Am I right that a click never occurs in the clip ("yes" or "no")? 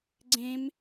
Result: no